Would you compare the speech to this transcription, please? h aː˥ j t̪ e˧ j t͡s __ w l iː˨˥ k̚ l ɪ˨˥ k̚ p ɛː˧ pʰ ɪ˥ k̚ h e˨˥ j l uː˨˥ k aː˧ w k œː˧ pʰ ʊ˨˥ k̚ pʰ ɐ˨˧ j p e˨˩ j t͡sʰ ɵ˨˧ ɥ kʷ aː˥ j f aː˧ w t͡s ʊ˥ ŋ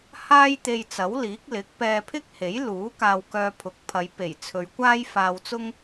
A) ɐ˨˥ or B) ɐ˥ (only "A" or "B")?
A